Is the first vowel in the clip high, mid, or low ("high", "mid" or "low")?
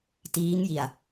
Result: high